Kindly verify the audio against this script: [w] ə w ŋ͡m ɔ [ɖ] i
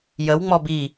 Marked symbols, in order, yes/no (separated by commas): no, no